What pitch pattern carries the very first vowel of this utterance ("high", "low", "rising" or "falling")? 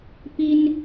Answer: high